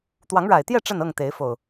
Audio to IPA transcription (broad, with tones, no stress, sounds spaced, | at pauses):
t̪ w ɑ˨˦ ŋ ɻ a˨˩ ɪ̯ t̪ j ɛ˥˨ ʈ͡ʂ ə˥˨ n ɤ˥˨ ŋ t̪ e˨˦ ɪ̯ f o˨˩ ʊ̯